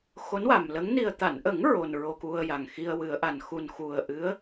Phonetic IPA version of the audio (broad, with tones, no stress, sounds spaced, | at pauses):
x o˧˥ n w a˨˩ m l ə˧˥ ŋ n i˨˩ ə̯ t̪ a˨˩˨ n ʔ ə˨˩˦ ŋ ɹ o˨˩ n ɹ o˧ k u˧ ə̯ j a˨˩ ŋ x i˧ ə̯ w ɨ˨˩˦ ə̯ ʔ a˨˩ n x u˨˩ n x u˨˩ ə̯ ʔ ɨ˧˥ ə̯